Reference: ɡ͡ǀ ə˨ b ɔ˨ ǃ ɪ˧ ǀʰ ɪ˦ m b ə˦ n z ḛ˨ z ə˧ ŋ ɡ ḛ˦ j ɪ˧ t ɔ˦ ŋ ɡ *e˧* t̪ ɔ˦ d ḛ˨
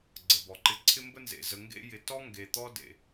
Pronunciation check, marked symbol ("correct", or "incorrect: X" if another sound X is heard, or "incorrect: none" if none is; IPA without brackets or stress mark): correct